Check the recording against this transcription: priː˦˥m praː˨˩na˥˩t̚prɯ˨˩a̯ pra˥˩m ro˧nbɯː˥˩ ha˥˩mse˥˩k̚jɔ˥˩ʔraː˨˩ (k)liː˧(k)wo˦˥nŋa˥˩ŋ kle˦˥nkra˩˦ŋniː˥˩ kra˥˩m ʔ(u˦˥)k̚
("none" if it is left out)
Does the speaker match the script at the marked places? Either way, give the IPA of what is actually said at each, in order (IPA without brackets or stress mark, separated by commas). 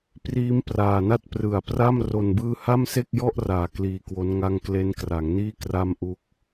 k, k, u˦˥